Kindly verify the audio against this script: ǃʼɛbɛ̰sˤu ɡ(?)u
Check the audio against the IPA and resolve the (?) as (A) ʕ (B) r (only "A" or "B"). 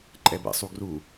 B